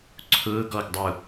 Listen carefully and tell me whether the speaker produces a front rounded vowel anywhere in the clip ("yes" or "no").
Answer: no